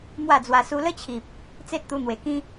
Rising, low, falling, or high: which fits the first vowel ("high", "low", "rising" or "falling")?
falling